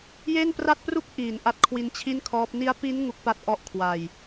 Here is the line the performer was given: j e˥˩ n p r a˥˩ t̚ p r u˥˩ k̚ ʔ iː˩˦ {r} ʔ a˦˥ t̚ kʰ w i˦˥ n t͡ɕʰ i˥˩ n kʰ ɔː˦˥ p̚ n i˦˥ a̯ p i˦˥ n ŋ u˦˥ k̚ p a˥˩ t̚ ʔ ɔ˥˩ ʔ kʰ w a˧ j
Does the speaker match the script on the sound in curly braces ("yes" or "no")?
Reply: no